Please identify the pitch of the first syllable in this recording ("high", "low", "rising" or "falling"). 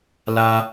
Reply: high